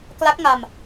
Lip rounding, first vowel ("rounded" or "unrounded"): unrounded